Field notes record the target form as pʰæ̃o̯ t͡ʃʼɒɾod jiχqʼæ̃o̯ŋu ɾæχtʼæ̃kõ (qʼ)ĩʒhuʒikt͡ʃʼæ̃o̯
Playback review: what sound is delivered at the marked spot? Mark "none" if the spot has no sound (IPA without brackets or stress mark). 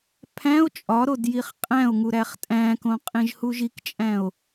qʼ